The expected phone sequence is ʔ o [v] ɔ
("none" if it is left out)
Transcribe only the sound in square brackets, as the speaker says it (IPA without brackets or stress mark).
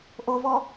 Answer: v